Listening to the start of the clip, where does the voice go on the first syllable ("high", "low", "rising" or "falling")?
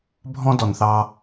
high